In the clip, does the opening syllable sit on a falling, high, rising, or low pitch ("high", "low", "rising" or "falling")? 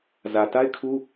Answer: low